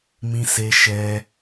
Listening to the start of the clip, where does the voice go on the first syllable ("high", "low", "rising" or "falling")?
high